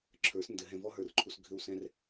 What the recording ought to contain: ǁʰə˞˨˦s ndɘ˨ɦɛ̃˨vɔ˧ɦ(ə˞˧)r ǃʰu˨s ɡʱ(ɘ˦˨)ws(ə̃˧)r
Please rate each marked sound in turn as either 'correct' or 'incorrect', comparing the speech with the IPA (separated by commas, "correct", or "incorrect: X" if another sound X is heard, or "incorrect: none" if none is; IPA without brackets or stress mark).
incorrect: ə˞˨, incorrect: ɘ˧, incorrect: ɛ̃˧